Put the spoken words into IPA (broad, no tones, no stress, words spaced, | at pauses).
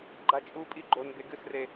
ɡ͡ǃat͡ʃʼupʼi ɡ͡ǃonbe ɡɨsre